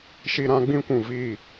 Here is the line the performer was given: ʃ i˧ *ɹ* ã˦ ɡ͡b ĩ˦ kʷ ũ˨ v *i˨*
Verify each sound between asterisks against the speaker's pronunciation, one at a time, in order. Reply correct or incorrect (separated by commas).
incorrect, incorrect